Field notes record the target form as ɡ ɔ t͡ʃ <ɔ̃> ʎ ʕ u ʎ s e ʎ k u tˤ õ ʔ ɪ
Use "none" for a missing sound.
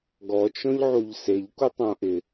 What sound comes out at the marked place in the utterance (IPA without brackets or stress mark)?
ɔ̃